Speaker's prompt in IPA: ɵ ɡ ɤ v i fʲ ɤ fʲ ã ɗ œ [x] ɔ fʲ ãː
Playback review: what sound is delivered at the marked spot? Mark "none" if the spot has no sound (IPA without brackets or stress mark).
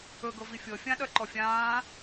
ǃ